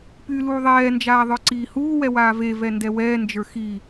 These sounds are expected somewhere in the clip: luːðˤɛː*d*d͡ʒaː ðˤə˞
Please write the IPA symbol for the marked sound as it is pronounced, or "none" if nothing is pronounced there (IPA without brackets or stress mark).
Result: n